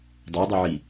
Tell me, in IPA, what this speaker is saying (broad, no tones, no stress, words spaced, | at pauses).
dˤudˤuʕi